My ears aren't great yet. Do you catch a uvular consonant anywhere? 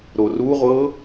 yes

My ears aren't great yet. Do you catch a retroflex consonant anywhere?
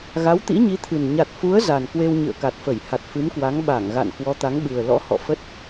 no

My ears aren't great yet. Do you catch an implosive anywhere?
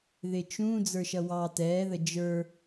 no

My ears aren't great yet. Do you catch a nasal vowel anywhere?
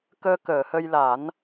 no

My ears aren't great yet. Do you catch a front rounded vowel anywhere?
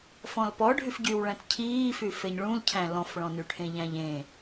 yes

